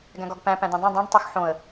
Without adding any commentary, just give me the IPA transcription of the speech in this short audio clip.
ɡæ̃ɡɒɡpæ̃ pæ̃d̪ĩdˤõ dˤĩɖ tˤuxħõə̯

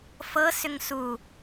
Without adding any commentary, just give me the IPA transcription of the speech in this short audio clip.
fɤsʏŋ su

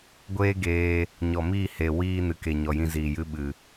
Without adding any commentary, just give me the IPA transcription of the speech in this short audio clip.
ɡʷeː˦ɡeː˧ | ɲɔ˨miː˦˨he˨ wiː˦ nɨ˨ke˨ ɲɔ˨jĩ˧ziː˨ jɨ˧ ɓɨ˨

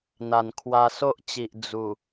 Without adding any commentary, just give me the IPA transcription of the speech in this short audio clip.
n̪a˨˩nkʰwa˧so˦ʔt͡ɕi˨ʔ d͡zu˨˩

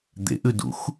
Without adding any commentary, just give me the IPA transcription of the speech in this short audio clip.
d̪ḛʔʉdṵx

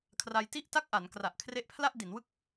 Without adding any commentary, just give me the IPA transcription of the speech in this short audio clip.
kʰra˧jti˥˩ʔta˥˩k̚ʔa˩˦n kra˨˩ʔkʰre˦˥ʔpʰla˥˩ʔ di˩˦nwɯ˥˩k̚

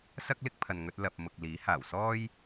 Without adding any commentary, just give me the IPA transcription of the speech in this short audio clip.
sɐ˥k̚lɪ˥k̚pʰɐ˨nŋɵ˧t̚ lɐ˨p̚mʊ˨k̚ liː˨˥haː˨˩w sɔː˥j

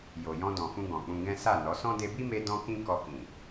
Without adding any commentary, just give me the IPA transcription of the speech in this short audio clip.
jo˨jɔ̃˧dɔ̃˨fũ˧ ɡɔ̃˨k͡pũ˧ɡɛ̃˦ sa˦˨nɔ˨˦ sɔ̃˦ de˧bi˦me˧ dɔ̃˦kĩ˦ kɔ˧kĩ˨

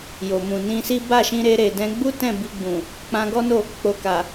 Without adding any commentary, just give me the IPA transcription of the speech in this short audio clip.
jo˨mũ˨nĩ˧si˦ ba˦˨ʃĩ˧ɾe˧ɾe˨ dɛ̃˧ɡ͡bu˦tɛ̃˦˨ bi˧ɡ͡bũ˨ | k͡pã˧ɡɔ˦no˦˨ | k͡po˨ ka˨

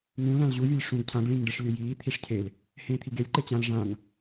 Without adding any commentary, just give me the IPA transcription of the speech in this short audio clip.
ŋũ lãlʑuvʲølʲ ʂũɡ cʰãɡ ɭĩŋɖɘʂ lʲøjiː t̪ʰiʂcʰel | hẽːt̪ʰiɡelʲ ǃet͡ɕãl ʐãŋ

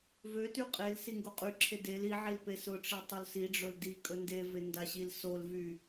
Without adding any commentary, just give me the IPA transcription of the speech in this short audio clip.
vøty qʼel siŋɡoqʼyǁʰe del i ʕilpesʊʈ͡ʂe tˤolsiɖ͡ʐɵl dikʼɵ ndeve ndaɕilsolvy

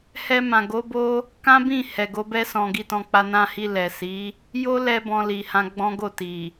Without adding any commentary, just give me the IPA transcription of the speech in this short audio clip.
hɛ˧mã˨ ɡo˨˦bo˦ | kã˦bĩ˦˨ hɛ˨ ɡo˨˦bɛ˦ sɔ̃˧ ɡi˧tɔ̃˧k͡pa˧ nã˧hi˧ lɛ˨si˨˦ | jo˦lɛ˧ bɔ̃˧li˨hã˧ ɡ͡bɔ̃˦ɡo˦˨ti˨

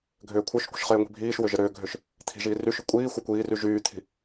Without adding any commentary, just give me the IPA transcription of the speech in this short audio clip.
ɡʱʏːkʷʰœʃkʷə̤ʃ χɪːŋʷi̤bʱiːʃwʏ ʒɪɾʏːɡʱʏʃ | t̪ʰi̤ʒiː ryʃʏ kʷʼiː xʷœkʷiːry ʒyːt̪ʰi̤

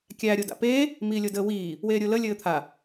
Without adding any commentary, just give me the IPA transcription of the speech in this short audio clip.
kʲæ ɾʲoda̰peː | miːlʲodəːwiː | weːɾʲʊːlə lʲɘːt̪ʰa

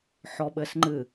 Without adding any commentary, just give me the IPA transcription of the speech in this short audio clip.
ħɔɓɘsŋ͡ǃɨ

